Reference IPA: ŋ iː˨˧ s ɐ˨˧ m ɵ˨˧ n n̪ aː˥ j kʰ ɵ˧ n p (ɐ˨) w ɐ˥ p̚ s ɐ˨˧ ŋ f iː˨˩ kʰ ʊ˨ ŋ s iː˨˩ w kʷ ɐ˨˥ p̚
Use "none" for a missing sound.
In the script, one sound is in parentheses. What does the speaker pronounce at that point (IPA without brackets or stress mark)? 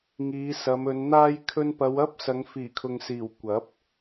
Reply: ɐ˨˧